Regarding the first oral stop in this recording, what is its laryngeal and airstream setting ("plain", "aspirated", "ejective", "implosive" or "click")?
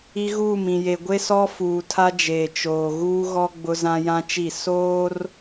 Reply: plain